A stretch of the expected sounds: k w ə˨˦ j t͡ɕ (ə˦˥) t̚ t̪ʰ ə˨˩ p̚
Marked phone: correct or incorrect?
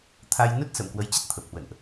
correct